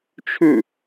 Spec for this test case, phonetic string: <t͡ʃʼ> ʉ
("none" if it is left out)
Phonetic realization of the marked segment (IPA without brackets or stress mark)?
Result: t͡ʃʰ